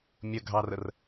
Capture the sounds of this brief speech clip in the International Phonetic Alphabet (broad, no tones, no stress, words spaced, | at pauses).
mʲəɡʱɑrər